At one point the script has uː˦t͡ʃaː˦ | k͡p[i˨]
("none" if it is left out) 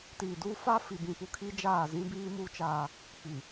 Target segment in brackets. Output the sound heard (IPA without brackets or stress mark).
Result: i˨